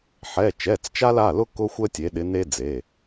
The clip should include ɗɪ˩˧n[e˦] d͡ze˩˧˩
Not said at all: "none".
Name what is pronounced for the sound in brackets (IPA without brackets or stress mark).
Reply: e˦